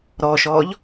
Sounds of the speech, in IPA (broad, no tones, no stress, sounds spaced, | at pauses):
ɾ ɔː ʃ ɔː ʎ